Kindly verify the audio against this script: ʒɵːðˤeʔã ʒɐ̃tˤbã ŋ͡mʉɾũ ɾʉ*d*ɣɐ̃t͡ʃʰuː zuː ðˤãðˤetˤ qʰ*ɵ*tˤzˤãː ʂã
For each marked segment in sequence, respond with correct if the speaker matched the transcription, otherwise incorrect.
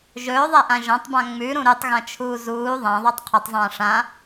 incorrect: tˤ, correct

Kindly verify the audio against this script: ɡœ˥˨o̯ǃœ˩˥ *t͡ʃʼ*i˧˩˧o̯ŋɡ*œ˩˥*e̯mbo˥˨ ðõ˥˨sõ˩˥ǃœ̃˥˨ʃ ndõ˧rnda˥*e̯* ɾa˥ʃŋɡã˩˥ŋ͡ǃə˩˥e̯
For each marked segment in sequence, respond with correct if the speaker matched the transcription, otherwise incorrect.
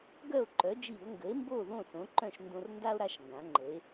incorrect: d͡ʒ, incorrect: ə˩˥, incorrect: o̯

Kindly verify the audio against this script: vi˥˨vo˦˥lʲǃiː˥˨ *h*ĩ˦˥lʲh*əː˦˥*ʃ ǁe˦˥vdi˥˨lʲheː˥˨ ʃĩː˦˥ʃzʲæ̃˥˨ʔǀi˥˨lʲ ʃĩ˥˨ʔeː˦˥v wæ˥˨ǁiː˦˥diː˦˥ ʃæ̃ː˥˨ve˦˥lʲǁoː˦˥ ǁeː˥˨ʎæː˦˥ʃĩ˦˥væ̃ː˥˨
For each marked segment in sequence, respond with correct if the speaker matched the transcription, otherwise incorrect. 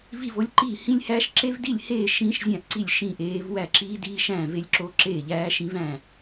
correct, incorrect: æː˦˥

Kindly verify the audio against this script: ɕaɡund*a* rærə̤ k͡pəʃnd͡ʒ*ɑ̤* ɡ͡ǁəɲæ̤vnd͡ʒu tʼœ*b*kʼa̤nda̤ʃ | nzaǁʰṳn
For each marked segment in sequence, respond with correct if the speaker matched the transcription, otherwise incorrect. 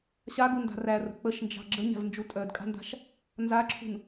incorrect: a̤, correct, incorrect: d

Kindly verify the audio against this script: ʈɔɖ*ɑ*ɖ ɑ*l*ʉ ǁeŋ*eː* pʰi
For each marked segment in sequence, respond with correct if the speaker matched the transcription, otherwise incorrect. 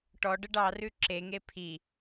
incorrect: ə, incorrect: r, incorrect: e

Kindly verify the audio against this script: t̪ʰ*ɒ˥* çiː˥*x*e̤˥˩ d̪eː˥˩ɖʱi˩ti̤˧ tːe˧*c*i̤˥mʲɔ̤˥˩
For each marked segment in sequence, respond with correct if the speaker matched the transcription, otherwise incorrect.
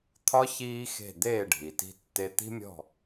correct, correct, incorrect: t̪

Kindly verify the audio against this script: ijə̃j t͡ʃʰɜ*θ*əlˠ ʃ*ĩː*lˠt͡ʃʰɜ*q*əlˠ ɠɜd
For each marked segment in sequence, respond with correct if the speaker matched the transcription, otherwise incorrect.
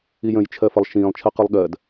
incorrect: f, correct, correct

